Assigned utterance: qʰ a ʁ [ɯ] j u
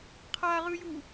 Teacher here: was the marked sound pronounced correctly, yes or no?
yes